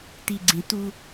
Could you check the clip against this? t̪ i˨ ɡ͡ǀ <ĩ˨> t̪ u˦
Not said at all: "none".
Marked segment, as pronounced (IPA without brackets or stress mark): ĩ˨